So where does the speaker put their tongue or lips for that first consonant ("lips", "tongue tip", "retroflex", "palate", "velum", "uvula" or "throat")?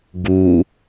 velum